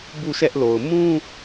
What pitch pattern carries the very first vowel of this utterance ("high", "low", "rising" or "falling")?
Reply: falling